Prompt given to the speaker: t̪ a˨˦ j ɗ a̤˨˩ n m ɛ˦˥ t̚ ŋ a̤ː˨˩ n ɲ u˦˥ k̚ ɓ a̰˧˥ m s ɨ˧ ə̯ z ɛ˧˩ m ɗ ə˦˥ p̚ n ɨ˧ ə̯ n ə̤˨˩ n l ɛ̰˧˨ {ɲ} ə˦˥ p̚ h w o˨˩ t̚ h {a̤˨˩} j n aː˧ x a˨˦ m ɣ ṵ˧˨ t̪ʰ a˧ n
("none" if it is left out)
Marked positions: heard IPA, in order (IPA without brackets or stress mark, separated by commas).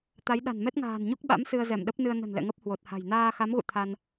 ŋ, a̤˨˩